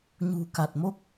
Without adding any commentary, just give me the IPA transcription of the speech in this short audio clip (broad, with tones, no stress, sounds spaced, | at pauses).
ɲ ṳ˨˩ k a˨˩ t̚ m o˦˥ k̚